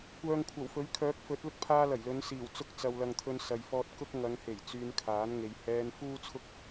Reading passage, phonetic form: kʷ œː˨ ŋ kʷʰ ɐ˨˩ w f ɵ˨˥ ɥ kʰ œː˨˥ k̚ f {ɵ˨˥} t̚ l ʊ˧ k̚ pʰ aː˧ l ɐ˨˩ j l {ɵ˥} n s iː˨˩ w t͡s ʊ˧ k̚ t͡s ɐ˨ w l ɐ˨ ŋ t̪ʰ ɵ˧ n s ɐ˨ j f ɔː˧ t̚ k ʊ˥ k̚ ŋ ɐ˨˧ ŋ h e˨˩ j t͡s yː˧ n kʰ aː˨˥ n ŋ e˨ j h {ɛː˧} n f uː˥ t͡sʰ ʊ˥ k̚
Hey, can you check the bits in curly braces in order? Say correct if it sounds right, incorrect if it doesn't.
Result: correct, incorrect: ɵ˨˧, correct

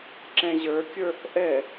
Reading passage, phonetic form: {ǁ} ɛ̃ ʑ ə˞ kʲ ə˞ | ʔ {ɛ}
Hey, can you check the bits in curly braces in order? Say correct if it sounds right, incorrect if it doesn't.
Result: correct, correct

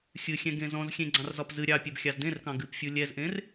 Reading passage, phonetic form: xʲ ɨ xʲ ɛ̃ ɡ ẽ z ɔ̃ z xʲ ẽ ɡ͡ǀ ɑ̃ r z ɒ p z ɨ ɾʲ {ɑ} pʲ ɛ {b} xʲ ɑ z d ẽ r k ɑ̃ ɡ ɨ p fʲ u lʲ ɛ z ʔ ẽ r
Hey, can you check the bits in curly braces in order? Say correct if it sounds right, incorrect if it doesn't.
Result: correct, correct

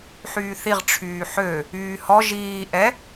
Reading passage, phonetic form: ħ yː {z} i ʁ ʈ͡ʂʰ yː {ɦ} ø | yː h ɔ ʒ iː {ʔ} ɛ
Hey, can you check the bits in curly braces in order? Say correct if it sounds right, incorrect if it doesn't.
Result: incorrect: θ, incorrect: ħ, correct

